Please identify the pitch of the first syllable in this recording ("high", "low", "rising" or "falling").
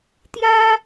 high